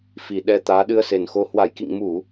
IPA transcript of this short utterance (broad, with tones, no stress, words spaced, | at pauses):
fi˨˩ ɗɛ˧ t̪aː˨˦ɗɨ˧ə̯se˨˩nxo˧ hwa˧˩jkḭ˧˨ŋ mu˧˩˨